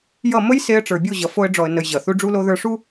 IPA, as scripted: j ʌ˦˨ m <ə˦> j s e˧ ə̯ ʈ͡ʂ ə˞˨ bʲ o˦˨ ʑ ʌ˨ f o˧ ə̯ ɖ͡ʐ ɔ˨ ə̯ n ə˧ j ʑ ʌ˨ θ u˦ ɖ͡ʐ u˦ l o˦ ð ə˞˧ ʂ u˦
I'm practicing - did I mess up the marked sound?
no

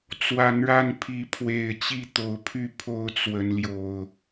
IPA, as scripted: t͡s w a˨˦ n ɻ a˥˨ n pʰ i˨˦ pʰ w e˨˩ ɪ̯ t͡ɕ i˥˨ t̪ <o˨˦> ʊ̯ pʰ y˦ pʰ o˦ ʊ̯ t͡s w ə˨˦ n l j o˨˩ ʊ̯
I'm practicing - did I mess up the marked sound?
no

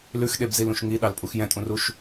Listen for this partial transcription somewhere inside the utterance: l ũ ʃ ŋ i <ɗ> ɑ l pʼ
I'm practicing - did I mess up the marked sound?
no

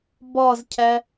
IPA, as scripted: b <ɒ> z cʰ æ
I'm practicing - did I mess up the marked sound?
no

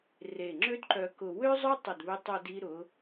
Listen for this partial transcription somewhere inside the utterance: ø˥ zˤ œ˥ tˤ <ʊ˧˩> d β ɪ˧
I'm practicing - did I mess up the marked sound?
no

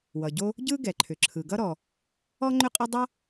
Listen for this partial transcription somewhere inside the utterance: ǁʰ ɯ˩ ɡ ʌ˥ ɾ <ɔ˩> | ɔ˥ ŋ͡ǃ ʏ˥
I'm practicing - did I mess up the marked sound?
no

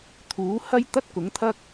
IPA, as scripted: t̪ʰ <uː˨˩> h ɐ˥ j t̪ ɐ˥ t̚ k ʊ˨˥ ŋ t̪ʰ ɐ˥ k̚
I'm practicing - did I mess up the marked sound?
yes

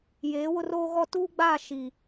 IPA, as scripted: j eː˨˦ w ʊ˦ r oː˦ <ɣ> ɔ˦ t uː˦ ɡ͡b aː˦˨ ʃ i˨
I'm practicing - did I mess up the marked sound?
no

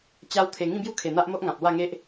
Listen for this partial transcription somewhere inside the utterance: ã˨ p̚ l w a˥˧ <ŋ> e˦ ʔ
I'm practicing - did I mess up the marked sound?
no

